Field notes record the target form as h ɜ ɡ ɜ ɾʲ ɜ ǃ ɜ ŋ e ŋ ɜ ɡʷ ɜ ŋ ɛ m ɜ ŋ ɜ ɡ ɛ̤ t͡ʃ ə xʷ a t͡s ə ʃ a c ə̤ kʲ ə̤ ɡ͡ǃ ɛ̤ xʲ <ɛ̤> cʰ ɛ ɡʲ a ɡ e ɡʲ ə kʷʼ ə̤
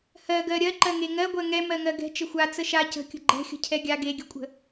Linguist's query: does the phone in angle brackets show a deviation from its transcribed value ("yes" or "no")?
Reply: yes